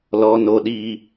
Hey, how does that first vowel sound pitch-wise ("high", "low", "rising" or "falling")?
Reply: high